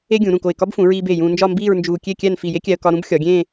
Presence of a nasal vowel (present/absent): present